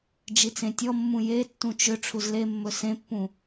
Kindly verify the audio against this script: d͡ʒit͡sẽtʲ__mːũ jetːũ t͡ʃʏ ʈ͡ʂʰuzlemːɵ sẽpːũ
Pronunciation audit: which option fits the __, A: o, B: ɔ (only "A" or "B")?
B